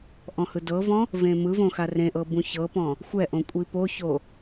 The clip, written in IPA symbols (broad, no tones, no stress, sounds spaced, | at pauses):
ʔ ɔ̃ h ɯ d ɤ v ɔ̃ | v ẽ m ɯ v õ x a r ẽ ʔ ɤ b ũ ç ɤ p ɔ̃ | xʷ ɛ ʔ õ kʷʼ i p o ç o